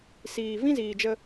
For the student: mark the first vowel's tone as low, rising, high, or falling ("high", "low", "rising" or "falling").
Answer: low